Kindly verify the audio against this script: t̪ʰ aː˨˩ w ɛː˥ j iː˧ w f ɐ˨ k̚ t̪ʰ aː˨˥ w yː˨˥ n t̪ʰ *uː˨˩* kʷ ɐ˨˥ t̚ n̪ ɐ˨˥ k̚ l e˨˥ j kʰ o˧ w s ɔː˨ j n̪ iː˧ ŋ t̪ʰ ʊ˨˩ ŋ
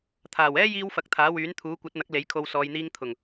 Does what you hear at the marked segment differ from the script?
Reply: yes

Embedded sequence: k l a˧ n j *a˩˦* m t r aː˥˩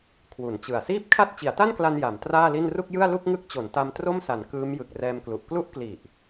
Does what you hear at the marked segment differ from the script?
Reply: no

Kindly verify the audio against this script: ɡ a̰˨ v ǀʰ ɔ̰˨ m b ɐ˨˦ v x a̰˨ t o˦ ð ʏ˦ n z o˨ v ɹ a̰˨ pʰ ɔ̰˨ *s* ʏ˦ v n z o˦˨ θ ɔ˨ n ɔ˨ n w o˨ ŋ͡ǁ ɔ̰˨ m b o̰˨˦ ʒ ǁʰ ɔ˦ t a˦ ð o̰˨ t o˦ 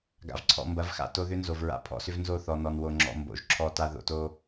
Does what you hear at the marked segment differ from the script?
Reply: no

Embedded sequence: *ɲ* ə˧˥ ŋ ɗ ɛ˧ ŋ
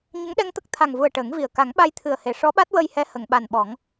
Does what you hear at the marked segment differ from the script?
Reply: no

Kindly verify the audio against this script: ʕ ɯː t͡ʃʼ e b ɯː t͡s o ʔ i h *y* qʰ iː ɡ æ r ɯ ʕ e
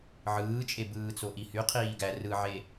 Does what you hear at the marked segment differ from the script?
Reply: no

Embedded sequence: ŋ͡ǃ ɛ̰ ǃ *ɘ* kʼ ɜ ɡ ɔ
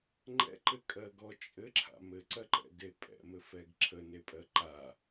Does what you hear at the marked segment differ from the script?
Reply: no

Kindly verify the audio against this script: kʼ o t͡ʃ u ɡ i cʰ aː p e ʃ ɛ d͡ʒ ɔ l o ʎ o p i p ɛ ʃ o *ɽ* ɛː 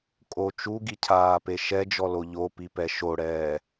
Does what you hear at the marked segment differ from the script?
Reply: no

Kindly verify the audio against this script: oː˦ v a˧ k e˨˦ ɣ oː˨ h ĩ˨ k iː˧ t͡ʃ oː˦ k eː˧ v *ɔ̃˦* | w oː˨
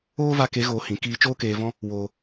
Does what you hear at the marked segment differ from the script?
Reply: no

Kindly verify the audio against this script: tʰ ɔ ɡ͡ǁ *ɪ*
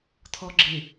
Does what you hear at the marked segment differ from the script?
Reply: no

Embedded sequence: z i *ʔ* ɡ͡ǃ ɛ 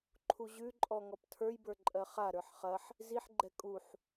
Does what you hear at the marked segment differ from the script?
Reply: yes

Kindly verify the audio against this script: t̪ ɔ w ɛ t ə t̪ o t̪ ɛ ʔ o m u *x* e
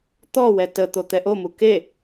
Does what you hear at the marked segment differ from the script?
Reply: yes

